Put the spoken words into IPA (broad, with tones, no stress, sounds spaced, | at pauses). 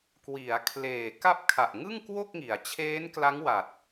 k w i˩˦ a̯ kʰ l eː˨˩ k a˥˩ p̚ kʰ a˨˩ ʔ ŋ ɯ˥˩ ŋ k w o˥˩ k̚ ŋ i˩˦ a̯ t͡ɕʰ eː˦˥ n k l a˦˥ ŋ w a˨˩ t̚